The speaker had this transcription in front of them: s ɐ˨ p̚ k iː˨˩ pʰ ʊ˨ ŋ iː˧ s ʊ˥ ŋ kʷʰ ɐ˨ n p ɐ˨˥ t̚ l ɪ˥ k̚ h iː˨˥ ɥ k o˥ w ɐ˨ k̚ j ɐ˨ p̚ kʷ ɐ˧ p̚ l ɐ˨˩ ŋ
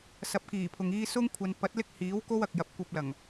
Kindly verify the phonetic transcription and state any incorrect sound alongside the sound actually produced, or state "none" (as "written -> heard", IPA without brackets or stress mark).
ɥ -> w